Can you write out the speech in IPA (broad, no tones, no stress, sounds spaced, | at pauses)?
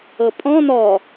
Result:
ɤ pʼ ɔ̃ n ɔ